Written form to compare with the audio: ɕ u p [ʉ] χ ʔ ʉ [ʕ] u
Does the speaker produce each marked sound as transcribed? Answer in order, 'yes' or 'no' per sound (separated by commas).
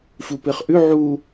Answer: no, yes